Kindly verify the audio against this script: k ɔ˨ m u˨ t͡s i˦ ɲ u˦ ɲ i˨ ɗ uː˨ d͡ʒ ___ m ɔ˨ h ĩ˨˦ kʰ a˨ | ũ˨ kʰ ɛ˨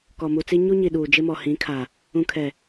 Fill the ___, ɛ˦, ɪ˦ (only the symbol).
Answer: ɪ˦